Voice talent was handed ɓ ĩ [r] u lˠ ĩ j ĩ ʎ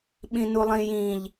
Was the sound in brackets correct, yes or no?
no